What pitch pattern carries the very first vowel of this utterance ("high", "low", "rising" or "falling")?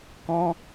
high